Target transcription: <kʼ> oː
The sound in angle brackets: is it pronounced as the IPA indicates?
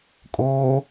yes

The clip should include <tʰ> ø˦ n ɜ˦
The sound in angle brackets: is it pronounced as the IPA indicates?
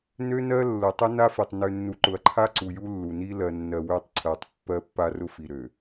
no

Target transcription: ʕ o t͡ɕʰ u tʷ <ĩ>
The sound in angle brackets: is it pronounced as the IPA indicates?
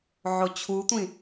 yes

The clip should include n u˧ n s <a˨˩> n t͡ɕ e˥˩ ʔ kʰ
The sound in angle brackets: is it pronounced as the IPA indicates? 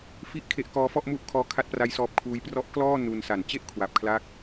yes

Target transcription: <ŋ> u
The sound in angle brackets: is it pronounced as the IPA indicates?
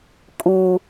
no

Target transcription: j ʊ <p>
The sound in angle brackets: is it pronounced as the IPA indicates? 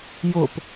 yes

